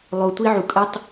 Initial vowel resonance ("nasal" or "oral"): oral